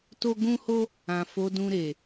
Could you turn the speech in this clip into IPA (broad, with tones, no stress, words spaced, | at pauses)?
to˧ ɡũ˦ho˦ | ã˨fo˨˦dũ˧ ɾe˨